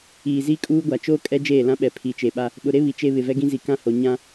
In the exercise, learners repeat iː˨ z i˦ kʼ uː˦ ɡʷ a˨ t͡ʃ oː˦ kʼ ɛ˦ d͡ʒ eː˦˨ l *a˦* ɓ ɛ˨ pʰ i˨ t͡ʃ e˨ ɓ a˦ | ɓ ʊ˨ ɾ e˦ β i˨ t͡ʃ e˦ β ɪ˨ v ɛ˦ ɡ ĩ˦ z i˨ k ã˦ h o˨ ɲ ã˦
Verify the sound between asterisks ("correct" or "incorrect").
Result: incorrect